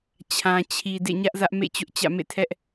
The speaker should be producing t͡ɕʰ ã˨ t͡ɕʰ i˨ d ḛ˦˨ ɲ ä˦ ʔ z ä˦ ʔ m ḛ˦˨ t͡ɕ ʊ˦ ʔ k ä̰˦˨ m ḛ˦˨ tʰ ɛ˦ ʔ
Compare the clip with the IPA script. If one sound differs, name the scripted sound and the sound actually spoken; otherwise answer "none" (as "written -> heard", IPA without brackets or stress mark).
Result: k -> t͡ɕ